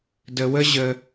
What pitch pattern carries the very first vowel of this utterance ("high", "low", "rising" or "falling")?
low